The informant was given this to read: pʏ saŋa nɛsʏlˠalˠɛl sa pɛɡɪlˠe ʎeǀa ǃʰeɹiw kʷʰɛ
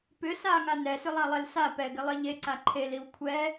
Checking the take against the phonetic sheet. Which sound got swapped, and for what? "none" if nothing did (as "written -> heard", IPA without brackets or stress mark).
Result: ɹ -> l